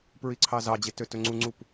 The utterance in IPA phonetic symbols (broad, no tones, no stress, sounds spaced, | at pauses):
p ɹ i ǀʰ ɑ z ɑ d͡ʑ e t ø t ɵ ŋ͡ǀ u ŋ͡ǀ u p